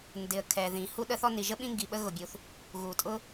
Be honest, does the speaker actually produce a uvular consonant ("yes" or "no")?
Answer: no